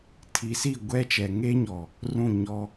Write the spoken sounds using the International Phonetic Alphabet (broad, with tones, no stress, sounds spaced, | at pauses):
tʰ i˨ s i˦˨ ɡʷ ɛ˦ t͡ʃ ɛ˨ ŋ e˦ ɲ ɔ˨ | r ũ˦˨ ɲ ɔ˦